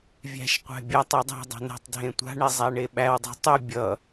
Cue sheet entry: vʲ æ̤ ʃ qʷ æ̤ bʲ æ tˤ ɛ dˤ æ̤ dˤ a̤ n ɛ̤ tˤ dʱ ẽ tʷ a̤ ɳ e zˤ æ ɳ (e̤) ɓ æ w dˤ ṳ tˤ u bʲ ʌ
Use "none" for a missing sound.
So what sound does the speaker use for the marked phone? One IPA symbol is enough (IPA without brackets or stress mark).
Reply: e